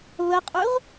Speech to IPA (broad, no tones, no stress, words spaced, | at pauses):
βəqʼʉʁ